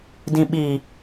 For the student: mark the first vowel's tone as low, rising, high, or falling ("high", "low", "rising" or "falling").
low